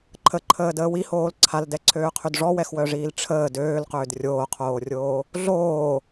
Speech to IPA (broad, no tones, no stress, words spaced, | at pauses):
ǃʰəǃʰəːdəː wihoːl ǀʰaldɛǀʰøːqʰyd ʐɔwɛxwœʐiːl ʈ͡ʂʰəː døːlqøːd rʲoːqʰoːrʲoː | ɮoː